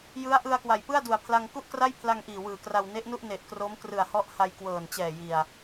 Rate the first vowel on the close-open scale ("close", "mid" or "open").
close